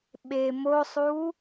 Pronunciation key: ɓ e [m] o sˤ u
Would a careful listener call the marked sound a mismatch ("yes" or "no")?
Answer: no